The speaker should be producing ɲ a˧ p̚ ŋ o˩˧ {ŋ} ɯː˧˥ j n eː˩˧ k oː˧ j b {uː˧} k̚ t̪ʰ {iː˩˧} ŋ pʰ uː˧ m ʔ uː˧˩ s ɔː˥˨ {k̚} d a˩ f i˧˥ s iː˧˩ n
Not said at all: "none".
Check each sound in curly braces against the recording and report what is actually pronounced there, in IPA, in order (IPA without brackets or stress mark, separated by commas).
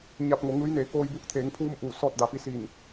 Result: ŋ, uː˧, eː˩˧, t̚